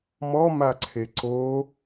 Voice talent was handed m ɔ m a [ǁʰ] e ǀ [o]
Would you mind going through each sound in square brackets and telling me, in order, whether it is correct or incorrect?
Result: incorrect, correct

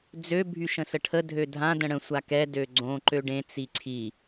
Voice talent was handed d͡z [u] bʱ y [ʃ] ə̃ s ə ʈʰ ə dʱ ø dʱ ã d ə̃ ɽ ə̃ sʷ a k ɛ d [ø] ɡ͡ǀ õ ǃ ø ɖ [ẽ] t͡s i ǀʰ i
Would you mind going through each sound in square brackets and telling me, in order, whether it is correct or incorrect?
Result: incorrect, correct, correct, correct

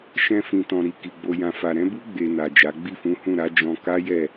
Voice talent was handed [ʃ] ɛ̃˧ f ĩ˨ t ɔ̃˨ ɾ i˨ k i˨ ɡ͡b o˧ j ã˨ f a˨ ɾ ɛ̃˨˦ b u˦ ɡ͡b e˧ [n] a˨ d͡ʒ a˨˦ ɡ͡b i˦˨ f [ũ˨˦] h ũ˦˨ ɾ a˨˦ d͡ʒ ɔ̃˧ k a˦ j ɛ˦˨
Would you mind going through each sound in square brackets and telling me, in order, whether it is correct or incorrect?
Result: correct, correct, correct

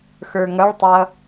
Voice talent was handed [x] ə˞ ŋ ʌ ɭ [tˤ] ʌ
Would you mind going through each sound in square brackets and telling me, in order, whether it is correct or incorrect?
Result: correct, correct

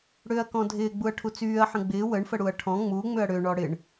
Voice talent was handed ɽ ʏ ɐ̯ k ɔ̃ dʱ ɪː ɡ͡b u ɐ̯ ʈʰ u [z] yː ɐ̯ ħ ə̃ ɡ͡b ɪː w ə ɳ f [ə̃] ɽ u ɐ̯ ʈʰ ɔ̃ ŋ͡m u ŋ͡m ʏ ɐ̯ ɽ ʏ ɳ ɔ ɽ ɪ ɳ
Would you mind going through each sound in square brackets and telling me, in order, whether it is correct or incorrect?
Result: incorrect, incorrect

